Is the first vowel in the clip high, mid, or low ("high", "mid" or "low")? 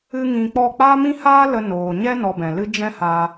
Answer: high